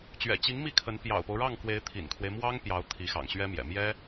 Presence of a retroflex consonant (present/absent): present